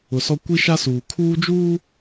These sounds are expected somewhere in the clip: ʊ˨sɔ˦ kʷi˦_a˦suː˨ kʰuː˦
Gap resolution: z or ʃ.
ʃ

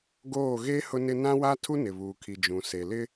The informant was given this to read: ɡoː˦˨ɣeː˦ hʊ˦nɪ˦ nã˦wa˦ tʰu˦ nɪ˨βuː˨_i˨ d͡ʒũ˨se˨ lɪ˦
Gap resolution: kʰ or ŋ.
kʰ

